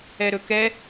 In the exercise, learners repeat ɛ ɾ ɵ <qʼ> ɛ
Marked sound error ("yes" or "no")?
yes